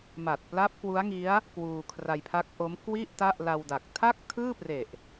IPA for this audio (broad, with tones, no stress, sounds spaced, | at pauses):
m a˨˩ t̚ p l a˦˥ p̚ k w u˦˥ a̯ ŋ i˦˥ a̯ | k w uː˧ kʰ r a˧ j pʰ a˦˥ k̚ ʔ o˦˥ m k w i˥˩ ʔ t a˥˩ ʔ l a˧ w d a˨˩ k̚ tʰ a˥˩ k̚ tʰ ɯː˥˩ p r e˨˩ ʔ